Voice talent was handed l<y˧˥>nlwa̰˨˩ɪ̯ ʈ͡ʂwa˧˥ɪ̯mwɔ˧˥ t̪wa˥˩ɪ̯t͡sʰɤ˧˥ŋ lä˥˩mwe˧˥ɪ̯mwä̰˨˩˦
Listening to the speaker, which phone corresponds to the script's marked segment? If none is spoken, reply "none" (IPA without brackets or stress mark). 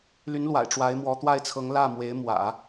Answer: y˧˥